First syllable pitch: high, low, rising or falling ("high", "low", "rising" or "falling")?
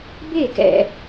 falling